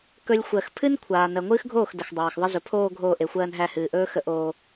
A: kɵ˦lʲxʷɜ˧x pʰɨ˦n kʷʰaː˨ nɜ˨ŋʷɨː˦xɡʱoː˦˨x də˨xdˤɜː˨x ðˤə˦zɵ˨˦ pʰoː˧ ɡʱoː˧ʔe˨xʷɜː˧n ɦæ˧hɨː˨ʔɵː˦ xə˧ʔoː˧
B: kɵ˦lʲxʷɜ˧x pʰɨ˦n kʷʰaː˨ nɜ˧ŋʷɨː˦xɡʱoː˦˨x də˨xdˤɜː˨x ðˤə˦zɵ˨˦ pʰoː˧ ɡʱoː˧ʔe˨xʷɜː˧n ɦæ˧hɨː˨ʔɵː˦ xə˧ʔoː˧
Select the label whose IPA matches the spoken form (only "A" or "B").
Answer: A